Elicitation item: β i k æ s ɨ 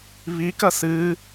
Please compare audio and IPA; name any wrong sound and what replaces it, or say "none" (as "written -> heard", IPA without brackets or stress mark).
æ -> ɐ